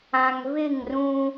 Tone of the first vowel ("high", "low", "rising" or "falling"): low